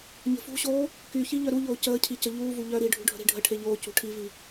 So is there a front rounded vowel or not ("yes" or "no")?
yes